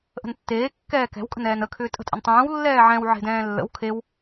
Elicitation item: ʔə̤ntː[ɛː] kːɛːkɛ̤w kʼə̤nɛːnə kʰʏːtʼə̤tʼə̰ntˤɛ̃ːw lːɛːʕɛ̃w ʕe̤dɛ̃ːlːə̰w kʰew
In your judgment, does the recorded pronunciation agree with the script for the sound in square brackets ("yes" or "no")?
no